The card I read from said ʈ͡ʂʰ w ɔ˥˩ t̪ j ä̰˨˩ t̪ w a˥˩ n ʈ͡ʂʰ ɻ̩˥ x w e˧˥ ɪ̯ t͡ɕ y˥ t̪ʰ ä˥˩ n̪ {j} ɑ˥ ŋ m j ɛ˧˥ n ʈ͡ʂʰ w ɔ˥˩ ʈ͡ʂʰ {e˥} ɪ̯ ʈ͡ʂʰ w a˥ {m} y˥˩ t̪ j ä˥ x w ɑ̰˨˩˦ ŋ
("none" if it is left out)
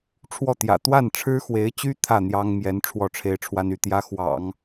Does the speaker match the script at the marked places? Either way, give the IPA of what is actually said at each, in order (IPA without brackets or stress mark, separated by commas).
j, e˥, n